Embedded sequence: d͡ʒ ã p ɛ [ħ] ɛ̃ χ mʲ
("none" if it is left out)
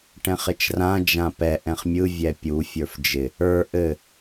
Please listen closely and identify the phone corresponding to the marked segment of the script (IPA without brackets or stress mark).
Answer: ʔ